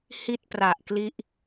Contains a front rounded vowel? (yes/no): no